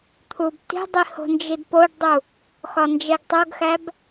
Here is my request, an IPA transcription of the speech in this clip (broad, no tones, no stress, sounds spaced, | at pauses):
t̪ʰ u b t i̤ dˤ i h o̤ n d͡ʒ i d p o ɖ dˤ u | x ɒ n d͡ʒ e ɡ tˤ o ɡ x æ b